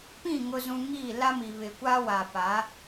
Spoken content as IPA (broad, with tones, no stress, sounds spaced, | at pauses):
p ĩ˦˨ ŋ ʊ˦ z ũ˦ ŋ i˦˨ l a˦ m i˨ β ɪ˨ kʷ aː˦ w a˨ p a˨˦